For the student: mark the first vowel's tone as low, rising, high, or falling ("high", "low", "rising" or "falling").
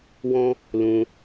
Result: high